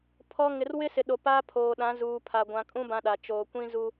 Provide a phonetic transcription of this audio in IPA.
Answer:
pʰ ɔ˦ ŋ ɪ˨ r w ɪ˦ s ɪ˨ ɗ o˨ p aː˦ pʰ oː˨ ɗ ã˨˦ z uː˨ pʰ a˨ ɡʷ ã˨ kʼ ũ˦ b ã˦ ɗ a˨ t͡ʃ oː˨ kʷ ĩ˦ z u˦

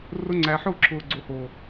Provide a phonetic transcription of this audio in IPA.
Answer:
r ʊ˧ ŋ͡ǀ æ˨ ħ ʊː˦˨ ǁʰ ʊː˨ ɡ͡ǀ o˨ h oː˨

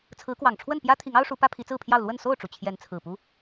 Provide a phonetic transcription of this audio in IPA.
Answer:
t͡sʰ ɹ̩˨˦ k w ɑ˨˩ ŋ ʈ͡ʂʰ w ə˥˨ n p j ä˦ t̪ʰ i˨˦ ŋ ɑ˦ ʊ̯ ʂ u˨˦ p ä˦ pʰ i˨˦ t͡s ɹ̩˥˨ pʰ j ɑ˥˨ ʊ̯ l w ə˥˨ n s o˥˨ ʊ̯ ʈ͡ʂ u˩ t͡ɕʰ j ɛ˨˦ n t͡sʰ ɹ̩˨˩ p u˦

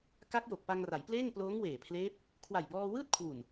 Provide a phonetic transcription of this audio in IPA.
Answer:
k a˦˥ k̚ j o˨˩ k̚ p a˧ ŋ r a˩˦ j p l eː˥˩ ŋ p l oː˦˥ ŋ w eː˨˩ pʰ l eː˦˥ p̚ | kʰ w a˨˩ j b ɔː˧ w ɯː˥˩ t̚ kʰ w u˨˩ n

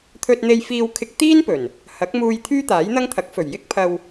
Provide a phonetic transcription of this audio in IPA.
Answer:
t̪ʰ ɵ˧ t̚ n̪ e˧ j f iː˧ w kʰ ɪ˧ k̚ t̪ iː˥ n p ɵ˨˩ n | h ɐ˨˥ k̚ m uː˧ j t̪ʰ yː˥ t̪ aː˨˥ j n̪ ɐ˥ ŋ t̪ʰ ɐ˨˥ k̚ f ɵ˨˩ ɥ j ɪ˥ k̚ pʰ ɐ˧ w

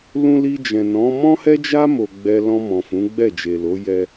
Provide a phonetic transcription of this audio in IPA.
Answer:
l ũ˧ l i˧ d͡ʒ ɛ̃˨ n ɔ̃˨˦ m ɔ̃˦ h ɛ˦ d͡ʒ a˦ m o˧ ɡ͡b ɛ˦ l ɔ̃˧ m ɔ̃˨ f ũ˨˦ ɡ͡b ɛ˦˨ d͡ʒ e˨ l o˨˦ j ɛ˦

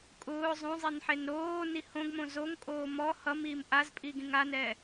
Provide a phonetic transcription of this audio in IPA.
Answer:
kʼ ʊː zˤ õ zˤ e n ħ e n ɾ oː n i h õ ɡ m õ z o ŋ kʼ oː m ɔ h ʌ m iː m ʔ a z pʼ iː ɡ ĩ ŋ a n ɛː

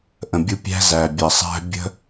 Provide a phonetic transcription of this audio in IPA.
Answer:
ʔ ə̃˨ bʲ u˧ pʲ æ̤˦ z æ˨ bʲ ə˨ sˤ æ̤˦ bʲ ə̤˦

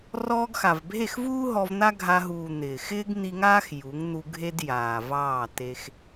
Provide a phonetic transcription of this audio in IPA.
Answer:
r ɔː˧ ɡ x a˨ v bʱ e˦˨ x v uː˦ ɦ ɔ˧ v n̪ a˦ ɡʱ a˧ ɦ uː˨ n̪ ɪː˨ x ɪː˦ ɡ n̪ i˧ ŋ aː˦ x j u˨˦ ŋ n̪ u˧ ɡʱ e˦ d j aː˨ v ɑː˦˨ t e˧ x

